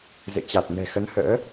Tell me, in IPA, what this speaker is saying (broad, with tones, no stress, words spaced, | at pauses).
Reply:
zḛ˧˨t͡ɕa˨˩t̚ nɛ̤˨˩xə˨˦nhə̰ː˧˥